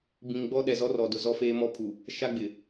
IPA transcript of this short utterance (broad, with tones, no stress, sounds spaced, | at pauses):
b ĩ˨ ŋ ɡ͡b ɔ˦ ɗ ɛ˨ z ɔ˦ r ɔ˨ d ʊ˨ z ɔ˦ f eː˦ m ɔ˦ pʰ u˨ | ʃ a˦ ɡ͡b ɪ˨